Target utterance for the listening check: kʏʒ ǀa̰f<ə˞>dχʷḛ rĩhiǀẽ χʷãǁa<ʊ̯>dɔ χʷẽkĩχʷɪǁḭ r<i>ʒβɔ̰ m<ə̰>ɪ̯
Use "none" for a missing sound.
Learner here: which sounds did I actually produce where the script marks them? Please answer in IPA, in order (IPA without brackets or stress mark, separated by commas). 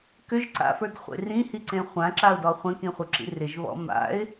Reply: ə˞, ʊ̯, ɪ, a̰